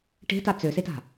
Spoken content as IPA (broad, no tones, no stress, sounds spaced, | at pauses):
ʈ e̤ t a t͡s ø s e t a̤